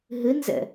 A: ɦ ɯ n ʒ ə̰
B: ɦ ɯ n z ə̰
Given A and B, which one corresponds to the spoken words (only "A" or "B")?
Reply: B